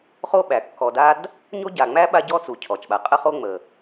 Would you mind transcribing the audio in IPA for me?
χo˥ɓæ˩kːɔ˨da˥d | ɲo˥ɟa˨ŋ͡mæ˥ɓa˦ ɟɔ˥t͡su˩ cʰɔ˩t͡ʃɓa˨qʼə˦χo˦ ŋ͡mə˩

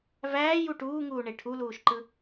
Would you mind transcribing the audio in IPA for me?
væːju ʈuːŋuːɳe ʈʰuluːʃǃɯ

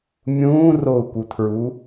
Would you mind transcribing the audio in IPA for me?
mʲũːrou̯kutʰɹu

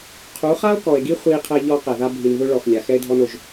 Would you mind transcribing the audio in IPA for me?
qʰu˨˦χa˦o̯kɔ˨e̯ɡi˦ χʷi˦qʰɛ˦ ʎɔ˦qɛ˨ða˦ bʱi˨nðʊ˦ɭɔ˨x lʲa˨xɛ˦e̯dʱɔ˦no˨ʒ

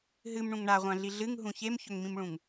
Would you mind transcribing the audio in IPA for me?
ɦɨmɳũŋ ɳaʁʷãɮi ɮɨŋɦũ çemçɵŋmĩmɭũŋ

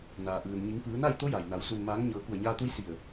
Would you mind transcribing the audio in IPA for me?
naː˩ʔɯː˩n ɲi˩˧ŋpɯː˩˧na˥˨j t̪o˧˥ja˩jna˩˧w su˩nmaː˩˧ŋ ɲɤː˩˧ku˧˩ə̯ɲaː˧t̪u˧˥j si˧˩ə̯

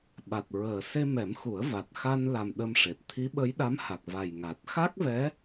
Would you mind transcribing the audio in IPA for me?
ɓa˨˩t̚ɹəː˨˩ se˧mɛ˨˩˦m xu˨˩˦ə̯va˨˩t̚ xa˧nla˨˩m ɗə˧mʂe˨˩t̚ t̪ʰi˧˥ɓə˧˥jɗa˧˥mha˨˩k̚ va˨˩jŋa˨˩t̚ xa˦˥k̚vɛ˧˥

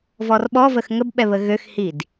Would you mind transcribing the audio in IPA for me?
vɔrɓɔvəx ŋəbɓɛ βəɣøxhid

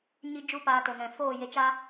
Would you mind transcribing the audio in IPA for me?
ɲi˧d͡ʒu˧paː˨ to˨ŋɛ̃˨foː˦˨ je˧t͡ʃa˦

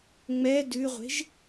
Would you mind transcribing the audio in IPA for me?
ŋ͡mɛ dʉʁʷe̤ʒ

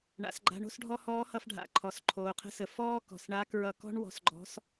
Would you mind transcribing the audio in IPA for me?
ɳa̰˩˧sɡ͡ǃa̤˧˥ɳo̤˥sɖʱɔ˥ hɔː˧˥hʌ˧fɖʱa̰˩˧ ǃʰɔ˩˧sǃʰoː˩˧qʰə̤˧˥sə˩˧ fɔː˥ kɔ̤˩sɳa˧˥kɹʌ˧kɔ̤˥ɳ wɔ̤˧sɡ͡ǃɔ̤˧˥s

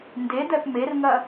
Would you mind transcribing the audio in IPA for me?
nded̪ɛp merŋɐ

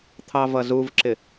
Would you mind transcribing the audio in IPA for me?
t̪ʰɑvʌzuvǁɪ

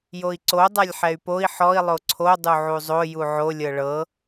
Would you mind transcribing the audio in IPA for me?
joi̯ǀo dˤalʲħɛy̯poi̯ ħɔi̯ lˠoǀʰo dˤuʕuzˤo juʕo lʲɤɭɤ

